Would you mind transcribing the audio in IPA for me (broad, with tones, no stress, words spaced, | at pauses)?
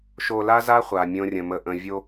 ʃo˨la˦za˦ χʷa˨mʲõ˦rʲə̃˨ mə˨ʔə̃˨ vʲo˦